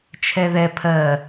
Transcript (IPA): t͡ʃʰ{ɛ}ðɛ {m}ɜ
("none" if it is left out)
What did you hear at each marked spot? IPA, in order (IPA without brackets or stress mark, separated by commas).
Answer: ɛ, pʰ